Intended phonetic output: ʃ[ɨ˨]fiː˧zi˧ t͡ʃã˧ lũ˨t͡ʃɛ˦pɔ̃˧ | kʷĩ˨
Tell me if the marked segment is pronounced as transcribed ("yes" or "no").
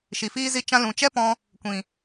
no